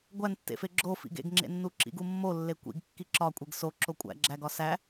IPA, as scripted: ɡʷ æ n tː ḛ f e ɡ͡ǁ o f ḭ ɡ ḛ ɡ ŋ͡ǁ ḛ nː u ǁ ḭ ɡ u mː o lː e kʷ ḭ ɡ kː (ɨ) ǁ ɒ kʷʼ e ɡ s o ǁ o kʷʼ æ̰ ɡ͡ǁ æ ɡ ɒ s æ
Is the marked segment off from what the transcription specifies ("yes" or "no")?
yes